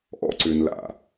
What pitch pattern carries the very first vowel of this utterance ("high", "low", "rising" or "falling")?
high